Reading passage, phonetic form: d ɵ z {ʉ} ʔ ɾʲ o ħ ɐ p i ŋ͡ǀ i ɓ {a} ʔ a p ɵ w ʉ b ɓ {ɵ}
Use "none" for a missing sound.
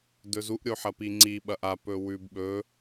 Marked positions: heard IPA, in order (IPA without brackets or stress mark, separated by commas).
u, ɐ, ɵ